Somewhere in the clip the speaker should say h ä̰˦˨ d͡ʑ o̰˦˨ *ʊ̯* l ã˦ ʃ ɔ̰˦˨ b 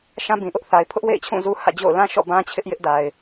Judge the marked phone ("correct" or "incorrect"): correct